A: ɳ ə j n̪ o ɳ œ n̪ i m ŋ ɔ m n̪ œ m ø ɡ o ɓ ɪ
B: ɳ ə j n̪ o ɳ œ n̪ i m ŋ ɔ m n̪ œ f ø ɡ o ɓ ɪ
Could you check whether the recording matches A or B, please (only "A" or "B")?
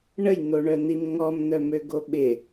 A